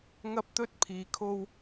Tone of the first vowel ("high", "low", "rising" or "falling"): high